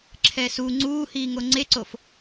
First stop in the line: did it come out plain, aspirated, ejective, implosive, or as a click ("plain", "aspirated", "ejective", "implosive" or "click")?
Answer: click